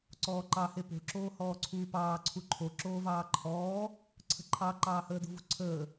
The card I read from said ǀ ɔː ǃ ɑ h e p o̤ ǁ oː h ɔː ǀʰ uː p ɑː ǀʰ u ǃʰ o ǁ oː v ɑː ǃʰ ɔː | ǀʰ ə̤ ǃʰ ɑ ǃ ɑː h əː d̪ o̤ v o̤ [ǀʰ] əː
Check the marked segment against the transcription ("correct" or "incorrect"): correct